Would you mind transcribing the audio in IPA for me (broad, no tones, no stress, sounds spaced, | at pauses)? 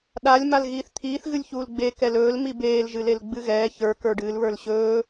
ɗ a lʲ m a l ɣ iː θ t̪ʰ iː θ ɣ ɨ lʲ ç uː l ɡ͡b e k ɛ l ɵː l m i b eː l ʒ ɨ l e l ɡ͡b ɨ ɣ ɛː ç ə˞ k ə˞ ɖ ɨː l β ə˞ l ɕ ɵː